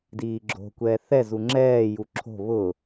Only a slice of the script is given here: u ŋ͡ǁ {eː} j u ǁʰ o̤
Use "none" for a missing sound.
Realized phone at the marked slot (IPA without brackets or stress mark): ɛː